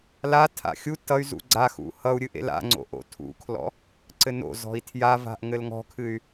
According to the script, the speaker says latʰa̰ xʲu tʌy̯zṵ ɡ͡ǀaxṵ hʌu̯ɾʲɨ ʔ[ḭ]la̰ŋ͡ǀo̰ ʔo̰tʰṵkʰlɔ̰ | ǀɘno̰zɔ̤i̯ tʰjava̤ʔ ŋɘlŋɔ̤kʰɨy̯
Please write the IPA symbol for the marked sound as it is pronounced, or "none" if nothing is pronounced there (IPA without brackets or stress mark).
ḛ